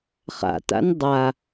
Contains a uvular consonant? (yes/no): yes